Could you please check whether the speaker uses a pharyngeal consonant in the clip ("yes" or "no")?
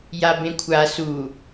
no